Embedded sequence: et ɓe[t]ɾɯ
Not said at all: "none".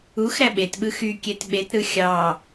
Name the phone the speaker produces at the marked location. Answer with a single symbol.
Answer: t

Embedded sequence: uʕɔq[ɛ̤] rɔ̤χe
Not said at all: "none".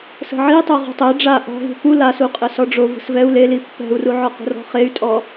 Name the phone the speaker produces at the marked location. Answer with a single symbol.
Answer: ə̤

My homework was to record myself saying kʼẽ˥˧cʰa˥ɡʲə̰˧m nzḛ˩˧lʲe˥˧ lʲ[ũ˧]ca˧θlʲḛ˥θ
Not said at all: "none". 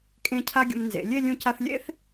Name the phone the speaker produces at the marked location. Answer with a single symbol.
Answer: ũ˧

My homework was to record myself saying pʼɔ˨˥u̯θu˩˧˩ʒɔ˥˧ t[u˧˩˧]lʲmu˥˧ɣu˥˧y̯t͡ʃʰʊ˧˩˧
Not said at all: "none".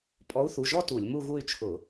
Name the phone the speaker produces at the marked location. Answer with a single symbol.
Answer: u˧˩˧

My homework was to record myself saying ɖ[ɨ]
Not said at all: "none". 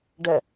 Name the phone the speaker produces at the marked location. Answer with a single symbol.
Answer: ɛ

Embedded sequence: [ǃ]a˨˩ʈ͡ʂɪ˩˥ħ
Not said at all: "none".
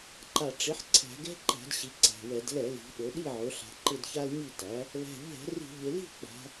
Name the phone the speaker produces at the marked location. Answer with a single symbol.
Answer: ǃ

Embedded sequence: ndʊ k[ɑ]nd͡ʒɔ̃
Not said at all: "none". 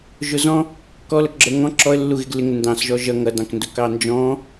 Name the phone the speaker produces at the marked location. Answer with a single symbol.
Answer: ɑ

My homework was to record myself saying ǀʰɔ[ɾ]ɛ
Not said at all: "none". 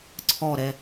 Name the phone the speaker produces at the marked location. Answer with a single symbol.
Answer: ɾ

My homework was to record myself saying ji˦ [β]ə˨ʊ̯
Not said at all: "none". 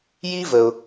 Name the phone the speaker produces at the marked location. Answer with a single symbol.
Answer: v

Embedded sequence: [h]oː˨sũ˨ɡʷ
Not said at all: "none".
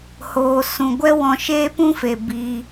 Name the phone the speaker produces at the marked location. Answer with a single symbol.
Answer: h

